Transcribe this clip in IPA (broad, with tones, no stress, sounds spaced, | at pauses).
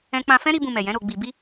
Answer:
ɛ̃˧ k͡p ã˧ f ɛ̃˦ ɾ i˦ b ũ˧ m ɛ˨ j ɛ̃˨˦ ɾ o˧ ɡ͡b i˧ b i˦